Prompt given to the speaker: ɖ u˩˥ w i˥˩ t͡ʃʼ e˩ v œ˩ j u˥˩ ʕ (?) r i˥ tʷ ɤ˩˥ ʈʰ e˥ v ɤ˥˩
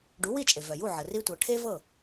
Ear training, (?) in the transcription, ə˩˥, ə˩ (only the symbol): ə˩